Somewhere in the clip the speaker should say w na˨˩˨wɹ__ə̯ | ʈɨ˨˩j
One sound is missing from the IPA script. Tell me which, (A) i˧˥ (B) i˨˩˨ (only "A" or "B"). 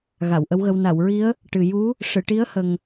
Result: A